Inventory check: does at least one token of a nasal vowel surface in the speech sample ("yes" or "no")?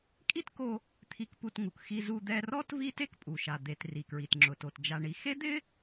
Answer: no